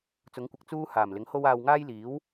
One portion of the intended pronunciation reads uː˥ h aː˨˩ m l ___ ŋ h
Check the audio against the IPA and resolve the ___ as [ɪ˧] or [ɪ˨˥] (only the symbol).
ɪ˨˥